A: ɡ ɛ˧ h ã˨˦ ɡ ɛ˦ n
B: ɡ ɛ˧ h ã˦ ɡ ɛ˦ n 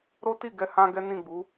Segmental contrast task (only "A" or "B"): B